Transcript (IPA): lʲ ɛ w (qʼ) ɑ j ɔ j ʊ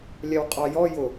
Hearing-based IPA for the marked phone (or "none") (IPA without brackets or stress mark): qʼ